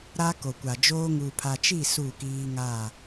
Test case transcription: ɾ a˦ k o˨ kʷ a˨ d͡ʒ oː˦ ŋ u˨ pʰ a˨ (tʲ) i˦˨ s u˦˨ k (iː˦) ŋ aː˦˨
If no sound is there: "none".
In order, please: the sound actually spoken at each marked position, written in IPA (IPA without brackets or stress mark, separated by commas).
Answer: t͡ʃ, iː˦